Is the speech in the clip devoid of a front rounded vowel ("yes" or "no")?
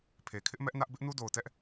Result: yes